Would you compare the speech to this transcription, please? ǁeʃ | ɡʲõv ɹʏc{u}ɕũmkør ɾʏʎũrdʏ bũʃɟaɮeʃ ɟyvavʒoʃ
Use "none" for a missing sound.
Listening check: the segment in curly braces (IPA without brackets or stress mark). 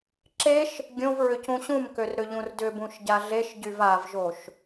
ũ